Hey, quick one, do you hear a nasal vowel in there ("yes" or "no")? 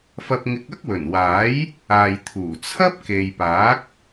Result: no